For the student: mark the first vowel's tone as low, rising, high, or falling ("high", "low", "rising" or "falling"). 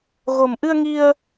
low